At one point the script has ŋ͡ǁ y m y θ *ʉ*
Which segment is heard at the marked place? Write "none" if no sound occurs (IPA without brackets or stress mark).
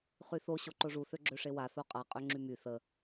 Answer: ə